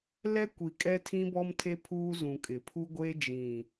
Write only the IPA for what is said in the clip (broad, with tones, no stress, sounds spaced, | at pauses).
l ɛ˦ kʷ i˨ kʼ ɛ˦ tʰ ĩ˦ b ɔ˦ m tʰ e˦ pʰ uː˦ z ũ˨ kʼ ɪ˨ pʰ u˦ ɡʷ e˦ d͡ʒ ĩ˨